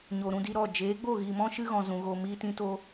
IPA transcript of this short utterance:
ɲ o˨ ɾ ũ˧ d i˧ ɾ ɔ˦˨ d͡ʒ eː˨˦ ɡ͡b o˦˨ ɣ iː˨ m ɔ̃˦ ʃ ɨ˦ ɣ ɔ̃˨ z ũ˨ ɣ o˨ m iː˧ t ĩ˦ t o˦

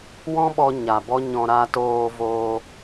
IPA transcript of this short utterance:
w ɔ̃˦ ɓ ɔ˧ ɲ a˨ b ɔ˦ ɲ ɔ̃˧ ɾ a˧ t oː˧ v oː˧

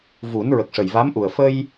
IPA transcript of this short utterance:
v u˨˩˦ n ɹ ə˨˩ k̚ ʂ ə˨˩ j v a˧˥ m ʔ u˨˩ ə̯ f ə˧ j

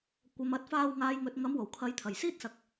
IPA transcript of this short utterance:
kʷ ɐ˨ m ɐ˨ t̚ f aː˧ w ŋ aː˨ j ŋ ɵ˨ t̚ ŋ ɐ˨˧ m w o˨˩ w kʰ ɐ˨˥ j t̪ʰ ɐ˨˩ j s iː˥ t̚ s ɐ˨˥ k̚

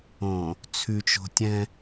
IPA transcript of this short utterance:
õ | t͡sʰ ʉ t͡ʃ o̤ tʲ ɛ̃

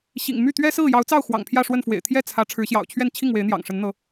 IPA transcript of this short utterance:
ɕ ḭ˨˩ ŋ m y˥˨ t̪ ɥ ɛ˦ s ɹ̩˥˨ j ɑ˨˦ ʊ̯ t͡s ɑ˥˨ ʊ̯ x w ɑ̰˨˩ ŋ pʰ j ä˥˨ ʂ w ə˥˨ n f w ḛ˨˩ ɪ̯ t̪ʰ j ɛ˥˨ t͡sʰ ä˨˦ ʈ͡ʂʰ ɻ̩˨˦ ɕ j ɑ̰˨˩ ʊ̯ t͡ɕʰ ɥ ɛ˥˨ n t͡ɕʰ i˥˨ ŋ w e˨˦ ɪ̯ n̪ j ɑ̰˨˩ ŋ ʂ ə˨˦ n n̪ ɤ˨˦

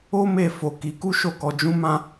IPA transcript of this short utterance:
o˦ m e˦˨ f o˨ k i˨˦ k u˦ ʃ o˦˨ k ɔ˧ d͡ʒ ũ˦ m ã˦

